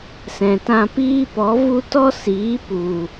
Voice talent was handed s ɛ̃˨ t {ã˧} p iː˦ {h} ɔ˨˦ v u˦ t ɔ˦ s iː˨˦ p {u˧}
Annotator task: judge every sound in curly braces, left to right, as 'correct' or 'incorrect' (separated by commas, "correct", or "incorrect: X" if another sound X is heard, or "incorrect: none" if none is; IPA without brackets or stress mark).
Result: correct, incorrect: p, incorrect: u˨